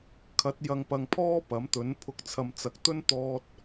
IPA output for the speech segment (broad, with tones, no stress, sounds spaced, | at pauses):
kʰ ɐ˨˥ t̚ j ɐ˨ ŋ p ɐ˨ ŋ pʰ ɔː˥ p ɐ˨˥ m t̪ ɵ˨˥ n pʰ ʊ˨˥ k̚ t͡sʰ ɐ˨ m t͡s ɐ˨ k̚ t̪ ɵ˥ n t̪ ɔː˧ t̚